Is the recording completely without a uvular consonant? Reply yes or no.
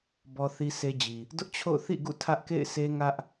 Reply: yes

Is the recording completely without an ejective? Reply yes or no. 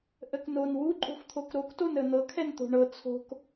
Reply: no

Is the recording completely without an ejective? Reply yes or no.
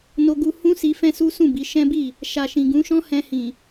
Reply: yes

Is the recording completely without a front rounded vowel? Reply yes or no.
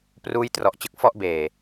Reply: yes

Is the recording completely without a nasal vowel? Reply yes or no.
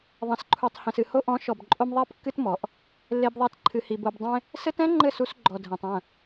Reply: no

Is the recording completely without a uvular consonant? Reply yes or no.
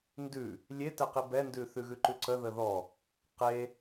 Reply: no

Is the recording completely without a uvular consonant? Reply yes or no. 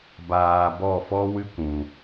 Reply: yes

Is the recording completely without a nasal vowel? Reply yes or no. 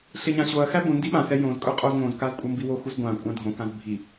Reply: no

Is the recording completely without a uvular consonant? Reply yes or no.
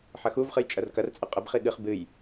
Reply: no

